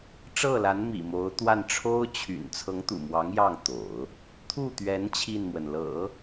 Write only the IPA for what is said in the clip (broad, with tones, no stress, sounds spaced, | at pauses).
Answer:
ʈ͡ʂ ɤ˥˩ l a˧˥ n m ḭ˨˩ m o˧˥ ʊ̯ t̪ w a˥˩ n ʈ͡ʂʰ o˥ ʊ̯ t͡ɕʰ y̰˨˩ n t͡sʰ ɤ˧˥ ŋ t̪ ṵ˨˩ m w ɑ˧˥ ŋ j ɑ˥˩ ŋ t̪ o̰˨˩˦ ʊ̯ | t̪ʰ u˥˩ t̪ ɥ ɛ˧˥ n t͡ɕʰ i˥˩ n m w ə˩ n l ɤ̰˨˩˦